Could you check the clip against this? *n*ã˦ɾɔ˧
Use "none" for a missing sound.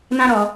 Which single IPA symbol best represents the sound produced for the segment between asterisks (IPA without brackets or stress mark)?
n